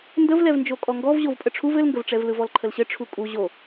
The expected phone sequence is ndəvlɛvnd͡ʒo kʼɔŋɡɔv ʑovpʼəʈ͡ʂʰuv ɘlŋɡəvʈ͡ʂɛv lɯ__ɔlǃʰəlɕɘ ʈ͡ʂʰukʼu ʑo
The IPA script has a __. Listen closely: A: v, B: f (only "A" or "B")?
A